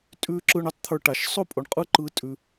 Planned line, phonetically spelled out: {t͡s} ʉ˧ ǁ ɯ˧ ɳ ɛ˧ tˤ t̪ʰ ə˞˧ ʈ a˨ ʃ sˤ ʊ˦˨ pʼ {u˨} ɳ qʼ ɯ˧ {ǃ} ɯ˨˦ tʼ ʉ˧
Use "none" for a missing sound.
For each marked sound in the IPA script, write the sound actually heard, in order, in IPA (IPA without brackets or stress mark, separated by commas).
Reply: tʼ, ʊ˨, ǃ